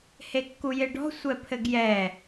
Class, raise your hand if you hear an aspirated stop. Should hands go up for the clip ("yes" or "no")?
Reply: yes